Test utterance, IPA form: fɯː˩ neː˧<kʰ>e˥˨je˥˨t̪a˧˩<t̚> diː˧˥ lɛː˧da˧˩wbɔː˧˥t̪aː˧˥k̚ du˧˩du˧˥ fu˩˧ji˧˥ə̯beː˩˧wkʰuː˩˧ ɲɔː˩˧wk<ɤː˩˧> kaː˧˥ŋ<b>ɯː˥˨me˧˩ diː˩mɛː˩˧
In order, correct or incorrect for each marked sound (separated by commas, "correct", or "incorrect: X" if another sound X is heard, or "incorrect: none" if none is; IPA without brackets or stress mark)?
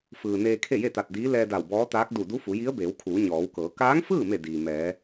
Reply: correct, correct, correct, incorrect: f